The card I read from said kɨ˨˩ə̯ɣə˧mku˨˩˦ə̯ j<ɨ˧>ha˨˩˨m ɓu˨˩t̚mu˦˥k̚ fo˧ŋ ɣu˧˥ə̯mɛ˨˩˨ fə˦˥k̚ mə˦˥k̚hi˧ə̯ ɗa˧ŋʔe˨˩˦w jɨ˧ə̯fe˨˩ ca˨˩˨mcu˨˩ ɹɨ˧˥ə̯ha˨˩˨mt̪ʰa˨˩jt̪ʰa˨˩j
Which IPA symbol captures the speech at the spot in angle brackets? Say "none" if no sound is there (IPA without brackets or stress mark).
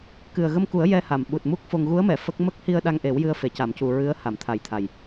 ɛ˧